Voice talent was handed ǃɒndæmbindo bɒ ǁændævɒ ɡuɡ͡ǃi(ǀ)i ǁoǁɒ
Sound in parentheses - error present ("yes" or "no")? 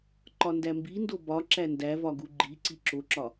no